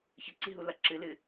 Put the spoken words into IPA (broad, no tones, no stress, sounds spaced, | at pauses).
ç ə ǀ i ɦ u l ɐ ǁ ɨ l ɨ